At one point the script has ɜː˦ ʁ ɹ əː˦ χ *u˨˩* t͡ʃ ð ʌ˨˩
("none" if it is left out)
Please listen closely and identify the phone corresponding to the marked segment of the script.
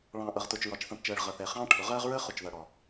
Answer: ʊ˨˩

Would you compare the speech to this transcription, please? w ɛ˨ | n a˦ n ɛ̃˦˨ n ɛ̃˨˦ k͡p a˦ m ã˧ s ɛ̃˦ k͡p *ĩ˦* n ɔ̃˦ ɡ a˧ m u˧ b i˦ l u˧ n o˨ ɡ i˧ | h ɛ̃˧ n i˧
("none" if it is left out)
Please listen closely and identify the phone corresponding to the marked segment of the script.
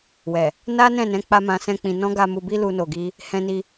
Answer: ĩ˧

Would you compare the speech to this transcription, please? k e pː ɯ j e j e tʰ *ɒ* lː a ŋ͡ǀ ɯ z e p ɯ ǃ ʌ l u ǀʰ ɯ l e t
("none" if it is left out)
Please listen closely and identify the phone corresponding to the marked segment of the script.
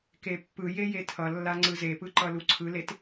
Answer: ʌ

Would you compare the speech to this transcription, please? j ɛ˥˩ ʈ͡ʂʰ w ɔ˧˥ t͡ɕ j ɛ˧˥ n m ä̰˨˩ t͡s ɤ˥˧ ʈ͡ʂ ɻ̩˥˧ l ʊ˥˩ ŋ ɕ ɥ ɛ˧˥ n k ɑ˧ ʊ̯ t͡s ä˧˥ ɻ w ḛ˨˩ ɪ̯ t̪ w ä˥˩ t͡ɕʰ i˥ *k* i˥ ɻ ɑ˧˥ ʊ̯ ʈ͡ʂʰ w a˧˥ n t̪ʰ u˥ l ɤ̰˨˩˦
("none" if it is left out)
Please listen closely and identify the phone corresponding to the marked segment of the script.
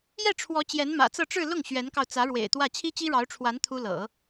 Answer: t͡ɕ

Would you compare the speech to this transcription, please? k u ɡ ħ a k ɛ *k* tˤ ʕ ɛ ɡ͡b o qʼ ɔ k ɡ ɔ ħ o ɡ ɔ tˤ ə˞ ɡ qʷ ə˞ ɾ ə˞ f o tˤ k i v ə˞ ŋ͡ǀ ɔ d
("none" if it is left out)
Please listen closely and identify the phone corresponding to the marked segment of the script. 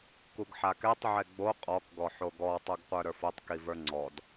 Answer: none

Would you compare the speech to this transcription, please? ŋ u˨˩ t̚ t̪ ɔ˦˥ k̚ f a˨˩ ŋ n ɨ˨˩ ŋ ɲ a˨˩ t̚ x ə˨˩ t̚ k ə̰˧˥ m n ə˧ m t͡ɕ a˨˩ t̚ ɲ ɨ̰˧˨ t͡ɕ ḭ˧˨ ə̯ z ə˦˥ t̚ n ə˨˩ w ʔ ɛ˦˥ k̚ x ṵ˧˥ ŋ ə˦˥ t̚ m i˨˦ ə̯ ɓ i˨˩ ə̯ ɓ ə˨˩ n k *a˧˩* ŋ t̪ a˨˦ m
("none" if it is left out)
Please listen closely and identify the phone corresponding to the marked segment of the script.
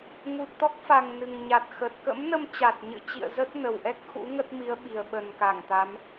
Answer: a˧˩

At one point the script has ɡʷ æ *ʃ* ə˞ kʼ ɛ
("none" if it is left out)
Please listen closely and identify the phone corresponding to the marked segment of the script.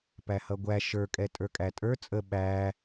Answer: ʃ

